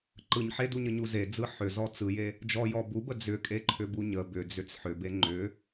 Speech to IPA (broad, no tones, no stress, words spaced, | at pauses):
ǃɯɲ ħeduɲəɲu zed͡zɯ ħʏzɔ t͡sɯje | d͡ʒɔjɔ bubə d͡zʏkʼeǃʰʏbu ɲə bʏd͡zʏt͡s ħʏbe ŋ͡ǃʏ